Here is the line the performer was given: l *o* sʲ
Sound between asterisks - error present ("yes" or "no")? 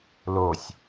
no